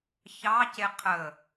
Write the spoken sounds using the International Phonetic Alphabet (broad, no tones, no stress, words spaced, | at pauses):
çɑ ceqʰə